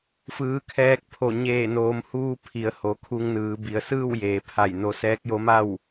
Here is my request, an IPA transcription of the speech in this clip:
fɯː˩˧kʰɛː˧k̚pʰo˧˩ ɲeː˧˩noː˩˧mhuː˧ pʰi˩˧ə̯ho˩˧kʰu˧ŋnɯː˩˧ bi˩ə̯sɯː˥˨wjeː˩˧pʰa˧˩j no˧sɛː˧˥k̚jo˧˥ma˥˨w

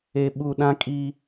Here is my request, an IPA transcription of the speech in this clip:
e˨ ɓu˨ ɗã˦kʼi˦

